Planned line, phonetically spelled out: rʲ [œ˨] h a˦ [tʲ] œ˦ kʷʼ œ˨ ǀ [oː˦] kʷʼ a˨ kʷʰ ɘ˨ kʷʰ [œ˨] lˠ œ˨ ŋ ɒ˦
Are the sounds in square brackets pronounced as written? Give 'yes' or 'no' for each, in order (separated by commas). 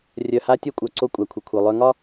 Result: yes, yes, no, yes